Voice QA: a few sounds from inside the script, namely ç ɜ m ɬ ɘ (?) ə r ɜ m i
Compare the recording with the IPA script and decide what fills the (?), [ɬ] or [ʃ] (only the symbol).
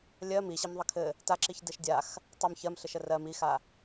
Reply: ʃ